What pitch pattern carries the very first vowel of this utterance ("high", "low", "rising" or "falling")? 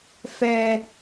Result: high